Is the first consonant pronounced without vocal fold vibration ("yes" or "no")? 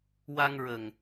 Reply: no